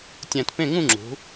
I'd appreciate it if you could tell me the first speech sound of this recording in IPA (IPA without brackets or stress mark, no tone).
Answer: tʲ